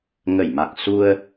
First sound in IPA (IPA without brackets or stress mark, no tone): ŋ